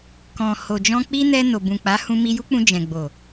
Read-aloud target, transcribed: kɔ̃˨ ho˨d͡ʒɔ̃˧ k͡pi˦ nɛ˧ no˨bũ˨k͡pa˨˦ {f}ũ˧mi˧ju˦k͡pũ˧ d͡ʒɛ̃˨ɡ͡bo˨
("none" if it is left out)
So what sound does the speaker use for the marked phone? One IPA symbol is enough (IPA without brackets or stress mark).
h